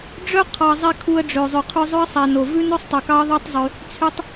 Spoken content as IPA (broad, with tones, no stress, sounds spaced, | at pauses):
ɖ͡ʐ œ˦ qʰ ɑ˨ zˤ ɛ˧ kʰ u˧ ə̯ ɖ͡ʐ ø˨ zˤ y˨ qʰ ʉ˧ zˤ ɵ˦ ə̯ sˤ ɛ˨ n o˨ v ʉ˦ n ɵ˦ sˤ tˤ ɵ˨ k ɑ˦ ə̯ ðˤ ø˦ tˤ zˤ y˧ | t͡sʰ y˦ tˤ